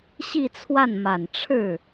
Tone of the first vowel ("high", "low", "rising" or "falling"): falling